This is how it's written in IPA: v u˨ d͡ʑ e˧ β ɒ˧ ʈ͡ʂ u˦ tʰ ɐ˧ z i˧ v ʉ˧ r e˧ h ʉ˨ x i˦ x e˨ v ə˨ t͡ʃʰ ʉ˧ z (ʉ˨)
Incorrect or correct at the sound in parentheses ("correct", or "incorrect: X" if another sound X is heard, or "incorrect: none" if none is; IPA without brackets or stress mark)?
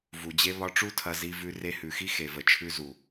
incorrect: u˨